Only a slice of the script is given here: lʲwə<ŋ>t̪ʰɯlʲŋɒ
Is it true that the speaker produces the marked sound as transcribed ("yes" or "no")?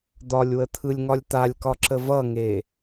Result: no